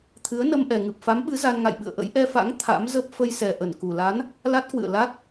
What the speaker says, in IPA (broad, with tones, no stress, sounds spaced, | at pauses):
t̪ʰ ɨ˨˦ ə̯ n ə˧ m ʔ ɛ˨˩ ŋ ɨ˨˩ p̚ f a˨˦ m ɓ ɨ˨˦ z a˧ n ŋ a̰˧˨ j ɓ ɨ̰˧˨ ə̯ ʔ ə̰˧˥ j ʔ ɛ˧ f a̰˧˥ ŋ t̪ʰ a̰˧˥ m z ə˦˥ p̚ f ə˧ j s ɛ˨˩ ʔ ə˧˩ n k u˨˩ l a˨˦ n | l a˦˥ t̚ k w ɨ̰˧˨ ə̯ l a˦˥ t̚